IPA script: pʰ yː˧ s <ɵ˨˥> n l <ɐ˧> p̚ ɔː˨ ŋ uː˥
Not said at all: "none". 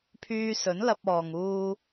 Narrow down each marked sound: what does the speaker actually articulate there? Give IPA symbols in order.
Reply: ɵ˨˥, ɐ˧

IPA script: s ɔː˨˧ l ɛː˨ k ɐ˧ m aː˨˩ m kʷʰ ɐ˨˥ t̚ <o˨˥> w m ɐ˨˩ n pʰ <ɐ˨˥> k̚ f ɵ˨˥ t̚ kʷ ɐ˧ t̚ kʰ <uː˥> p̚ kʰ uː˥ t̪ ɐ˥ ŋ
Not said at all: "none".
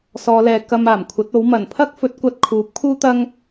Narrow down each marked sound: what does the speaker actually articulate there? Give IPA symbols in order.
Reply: o˨˥, ɐ˥, uː˨˥

